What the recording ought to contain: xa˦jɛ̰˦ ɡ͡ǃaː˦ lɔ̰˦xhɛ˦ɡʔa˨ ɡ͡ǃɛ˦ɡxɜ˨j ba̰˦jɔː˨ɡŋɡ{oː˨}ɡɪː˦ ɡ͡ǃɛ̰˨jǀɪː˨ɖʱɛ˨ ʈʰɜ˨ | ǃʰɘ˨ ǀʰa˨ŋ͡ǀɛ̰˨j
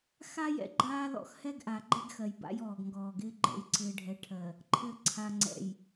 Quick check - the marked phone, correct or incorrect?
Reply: incorrect